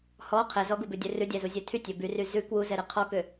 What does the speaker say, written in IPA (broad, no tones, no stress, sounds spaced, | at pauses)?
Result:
h ɔ qʰ ɛ z ɔ ɡ u b ʉ dʲ ø r ʉ dʲ ɛ z u zʲ ø tʰ y tʲ ø b y r y z ʉ k w u z ɛ ɾ ɛ qʰ ɔ k ø